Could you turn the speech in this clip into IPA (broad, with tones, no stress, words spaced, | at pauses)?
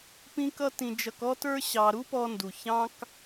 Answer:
pĩ˥kʌ˥tĩ˧d͡ʒʌ˧k ɔ˥tə˞˥ ɕɑ˧ ɾu˥pɔ˧ndu˩ çɑ̃˥k